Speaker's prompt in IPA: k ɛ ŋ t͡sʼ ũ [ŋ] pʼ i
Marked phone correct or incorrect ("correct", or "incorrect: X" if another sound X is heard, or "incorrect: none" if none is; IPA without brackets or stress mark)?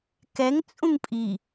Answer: correct